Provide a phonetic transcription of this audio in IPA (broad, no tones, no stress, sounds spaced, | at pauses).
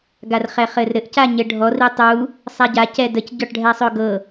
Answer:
ɡ a r χ ɛ χ ɘ r ɾ ɘ ʔ c a ɲ ɘ ɖʱ ɔ r i tˤ u | sˤ a ɟ a c ɛ d ə c ɟ ɔ ʈ ɖʱ ɛ sˤ ɵ ɡ ɤ